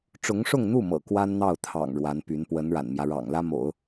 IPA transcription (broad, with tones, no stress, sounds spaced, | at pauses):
ʈ͡ʂ ʊ˧˥ ŋ ʂ ʊ˥˧ ŋ n̪ u˥˩ m ɤ̰˨˩ k w a˥ n n̪ ɑ˥˩ ʊ̯ t̪ʰ ɑ̰˨˩ ŋ ɻ w a˧˥ n p y˧˥ n p w ə˧˥ n ɻ a̰˨˩ n m j ä˦ ɻ ɑ̰˨˩ ŋ l ä˥ m o̰˨˩˦ ʊ̯